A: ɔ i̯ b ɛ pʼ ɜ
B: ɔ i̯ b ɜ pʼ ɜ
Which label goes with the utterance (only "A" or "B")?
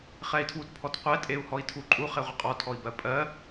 B